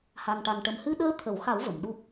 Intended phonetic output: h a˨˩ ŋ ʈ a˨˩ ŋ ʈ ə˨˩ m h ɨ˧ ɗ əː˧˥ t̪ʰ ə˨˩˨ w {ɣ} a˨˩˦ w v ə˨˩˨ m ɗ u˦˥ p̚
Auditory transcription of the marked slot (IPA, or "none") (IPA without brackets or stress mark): x